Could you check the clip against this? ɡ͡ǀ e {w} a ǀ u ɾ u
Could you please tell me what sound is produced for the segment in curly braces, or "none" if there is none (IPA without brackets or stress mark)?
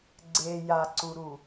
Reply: j